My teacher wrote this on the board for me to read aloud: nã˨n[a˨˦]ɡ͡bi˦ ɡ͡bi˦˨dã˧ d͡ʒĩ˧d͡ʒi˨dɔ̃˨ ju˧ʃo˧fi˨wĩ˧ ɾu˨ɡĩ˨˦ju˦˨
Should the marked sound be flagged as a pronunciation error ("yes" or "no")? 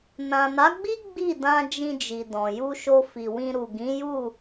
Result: no